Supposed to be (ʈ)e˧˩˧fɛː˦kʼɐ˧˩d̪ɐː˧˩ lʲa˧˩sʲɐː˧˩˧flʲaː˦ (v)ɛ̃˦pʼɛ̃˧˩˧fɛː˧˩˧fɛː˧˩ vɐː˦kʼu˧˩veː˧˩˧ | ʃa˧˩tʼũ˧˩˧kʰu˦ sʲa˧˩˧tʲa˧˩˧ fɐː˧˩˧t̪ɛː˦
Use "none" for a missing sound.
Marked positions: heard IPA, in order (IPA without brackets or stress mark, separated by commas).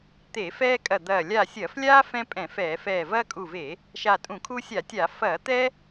t̪, f